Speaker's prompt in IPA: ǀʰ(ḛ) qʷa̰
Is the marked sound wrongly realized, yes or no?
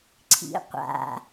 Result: yes